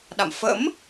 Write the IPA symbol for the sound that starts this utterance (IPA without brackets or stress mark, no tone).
ɗ